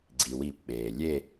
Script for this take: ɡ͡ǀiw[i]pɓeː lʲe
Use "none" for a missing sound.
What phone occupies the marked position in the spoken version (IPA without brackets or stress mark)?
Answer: i